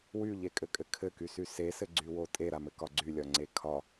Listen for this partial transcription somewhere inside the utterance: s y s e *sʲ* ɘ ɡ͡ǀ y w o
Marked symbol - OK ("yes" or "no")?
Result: no